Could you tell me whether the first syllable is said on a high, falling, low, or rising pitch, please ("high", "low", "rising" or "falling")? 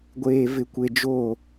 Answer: low